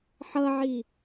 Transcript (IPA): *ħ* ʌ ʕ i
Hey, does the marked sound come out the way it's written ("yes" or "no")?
yes